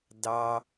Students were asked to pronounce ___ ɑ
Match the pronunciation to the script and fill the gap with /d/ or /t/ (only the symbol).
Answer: d